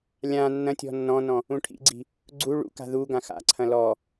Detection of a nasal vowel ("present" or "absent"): present